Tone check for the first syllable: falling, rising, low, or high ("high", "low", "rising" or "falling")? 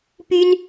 high